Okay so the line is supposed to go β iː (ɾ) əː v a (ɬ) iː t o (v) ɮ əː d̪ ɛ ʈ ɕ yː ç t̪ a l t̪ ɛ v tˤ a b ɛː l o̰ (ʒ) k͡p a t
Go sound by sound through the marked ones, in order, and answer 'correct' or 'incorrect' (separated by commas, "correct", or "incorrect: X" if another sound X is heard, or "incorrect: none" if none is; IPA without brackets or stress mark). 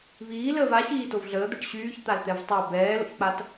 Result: incorrect: l, incorrect: ɕ, correct, incorrect: ç